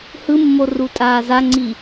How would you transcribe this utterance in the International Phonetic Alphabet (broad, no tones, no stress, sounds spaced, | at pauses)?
h ɯ mː o r u tʼ aː z a ŋ͡ǀ i